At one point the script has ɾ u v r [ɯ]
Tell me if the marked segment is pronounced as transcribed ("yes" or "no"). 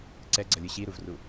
no